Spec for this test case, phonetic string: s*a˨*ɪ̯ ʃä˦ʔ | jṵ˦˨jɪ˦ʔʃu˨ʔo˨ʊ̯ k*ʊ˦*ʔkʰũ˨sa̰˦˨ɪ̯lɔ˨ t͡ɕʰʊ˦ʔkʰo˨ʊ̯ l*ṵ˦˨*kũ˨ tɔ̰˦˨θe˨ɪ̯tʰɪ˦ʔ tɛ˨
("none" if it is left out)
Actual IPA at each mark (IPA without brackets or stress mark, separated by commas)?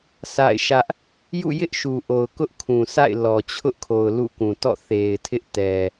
a̰˦˨, ʊ˦, ṵ˦˨